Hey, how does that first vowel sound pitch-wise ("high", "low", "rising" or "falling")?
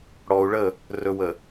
low